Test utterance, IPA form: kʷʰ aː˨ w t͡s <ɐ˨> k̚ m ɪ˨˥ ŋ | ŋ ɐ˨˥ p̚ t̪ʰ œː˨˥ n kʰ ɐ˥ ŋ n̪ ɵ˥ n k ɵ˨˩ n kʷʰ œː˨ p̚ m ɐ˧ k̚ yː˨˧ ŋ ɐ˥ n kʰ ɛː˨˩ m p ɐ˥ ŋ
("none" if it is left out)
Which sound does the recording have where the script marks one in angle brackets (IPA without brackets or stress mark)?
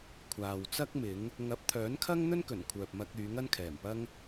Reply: ɐ˥